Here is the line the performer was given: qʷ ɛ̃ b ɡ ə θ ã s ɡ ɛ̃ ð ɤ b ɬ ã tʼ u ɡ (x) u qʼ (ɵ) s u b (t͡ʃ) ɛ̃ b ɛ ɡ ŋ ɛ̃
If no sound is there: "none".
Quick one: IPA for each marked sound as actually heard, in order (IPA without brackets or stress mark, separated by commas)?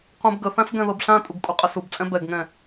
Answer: kʼ, ə, t͡sʼ